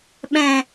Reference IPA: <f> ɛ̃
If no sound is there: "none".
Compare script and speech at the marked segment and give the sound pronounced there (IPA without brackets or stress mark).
ɓ